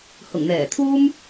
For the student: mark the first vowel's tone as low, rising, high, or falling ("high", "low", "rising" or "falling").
low